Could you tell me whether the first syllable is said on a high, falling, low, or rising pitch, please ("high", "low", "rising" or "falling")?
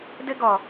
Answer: high